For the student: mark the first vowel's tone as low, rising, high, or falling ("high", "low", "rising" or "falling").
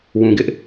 low